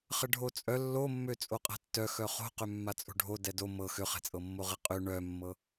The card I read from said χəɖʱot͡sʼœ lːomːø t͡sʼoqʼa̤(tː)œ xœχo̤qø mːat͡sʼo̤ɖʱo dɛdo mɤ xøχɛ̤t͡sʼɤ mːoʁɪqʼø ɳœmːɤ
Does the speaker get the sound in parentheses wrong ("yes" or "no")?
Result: no